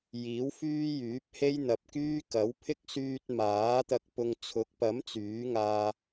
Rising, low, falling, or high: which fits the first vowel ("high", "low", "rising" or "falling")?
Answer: rising